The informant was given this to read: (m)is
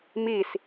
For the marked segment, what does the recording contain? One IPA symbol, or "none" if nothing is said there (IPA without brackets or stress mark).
m